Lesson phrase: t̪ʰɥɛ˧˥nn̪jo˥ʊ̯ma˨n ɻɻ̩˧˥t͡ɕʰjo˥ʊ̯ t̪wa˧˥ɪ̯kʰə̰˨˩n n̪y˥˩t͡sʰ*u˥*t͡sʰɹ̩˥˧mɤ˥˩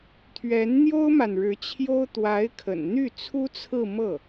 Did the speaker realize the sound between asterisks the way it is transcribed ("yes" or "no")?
yes